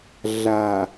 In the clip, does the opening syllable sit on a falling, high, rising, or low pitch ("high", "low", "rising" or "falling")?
low